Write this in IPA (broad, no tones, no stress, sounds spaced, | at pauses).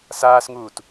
s aː s ŋ uː t